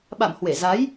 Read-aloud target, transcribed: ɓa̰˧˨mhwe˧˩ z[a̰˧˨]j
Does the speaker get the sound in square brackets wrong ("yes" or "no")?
yes